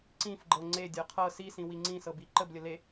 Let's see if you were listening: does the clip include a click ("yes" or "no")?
yes